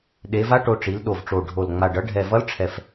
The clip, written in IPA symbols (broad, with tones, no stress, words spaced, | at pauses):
ɗe˩˧va˧˥ʈo˩˧ ʈ͡ʂi˩˧lɗo˨˩vʈ͡ʂo˨˩ɖʱo˨˩l ŋ͡ma˨˩ɖʌ˧˥ ɖʱɛ˨˩vʌ˧˥lʈ͡ʂʰɛ˨˩f